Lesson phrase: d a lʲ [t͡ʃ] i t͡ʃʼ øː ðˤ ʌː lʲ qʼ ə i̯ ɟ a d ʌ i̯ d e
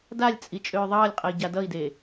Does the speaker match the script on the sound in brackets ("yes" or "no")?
no